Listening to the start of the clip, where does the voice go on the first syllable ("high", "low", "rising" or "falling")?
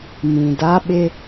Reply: low